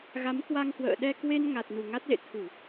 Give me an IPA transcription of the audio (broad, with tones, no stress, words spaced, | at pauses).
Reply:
ɣa˨˦mkwa˧ŋhwə̰ː˧˨ ɗɛ˧kwe˧n ŋa˨˩t̚nu˨˩ŋa˦˥t̚lḛ˧˨ t̪ʰu˧˩˨